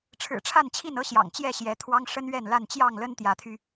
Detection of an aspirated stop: present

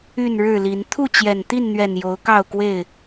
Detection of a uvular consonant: absent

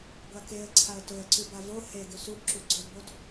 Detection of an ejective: absent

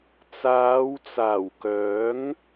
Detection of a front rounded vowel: present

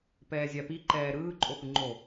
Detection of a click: present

